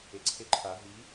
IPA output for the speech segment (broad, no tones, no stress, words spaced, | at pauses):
eǀʰeǃʰa ɦi